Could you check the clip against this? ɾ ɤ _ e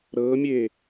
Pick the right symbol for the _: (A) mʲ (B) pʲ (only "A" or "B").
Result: A